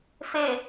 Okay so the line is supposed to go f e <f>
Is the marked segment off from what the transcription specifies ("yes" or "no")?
yes